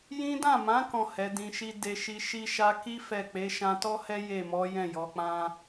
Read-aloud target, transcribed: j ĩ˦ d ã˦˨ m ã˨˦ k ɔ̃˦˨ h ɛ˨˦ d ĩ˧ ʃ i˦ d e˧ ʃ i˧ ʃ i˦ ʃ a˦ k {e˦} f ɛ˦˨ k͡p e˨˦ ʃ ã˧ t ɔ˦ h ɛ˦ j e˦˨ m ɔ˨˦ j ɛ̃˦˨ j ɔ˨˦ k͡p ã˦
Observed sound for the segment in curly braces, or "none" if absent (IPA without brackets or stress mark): i˦